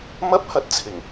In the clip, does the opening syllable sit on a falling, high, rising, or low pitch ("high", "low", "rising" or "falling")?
high